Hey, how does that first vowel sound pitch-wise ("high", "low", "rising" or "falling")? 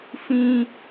high